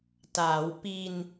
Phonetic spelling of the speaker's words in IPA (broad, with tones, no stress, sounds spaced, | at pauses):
t aː˩˦ w p i˧ n